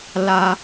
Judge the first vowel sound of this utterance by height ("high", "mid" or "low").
low